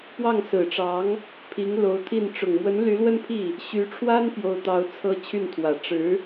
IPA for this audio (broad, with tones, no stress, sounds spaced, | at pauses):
p w ɑ˥˩ ŋ s ɹ̩˨˩ ʈ͡ʂ ɑ˧˥ ŋ | pʰ i˧˥ ŋ l o˧˥ ʊ̯ t̪ʰ i˥˩ n ʈ͡ʂ ʊ˨˩ ŋ m w ə˧˥ n l y˧˥ l w ə˥ n pʰ i˥˩ | ɕ y˧˥ ʈ͡ʂʰ w a˥ n p j o˥ ʊ̯ t̪ ɑ˥ ʊ̯ t͡sʰ ɤ˥ t͡ɕʰ y˥˩ n t̪ʰ w ä˨˩ ʈ͡ʂ ɻ̩˧˥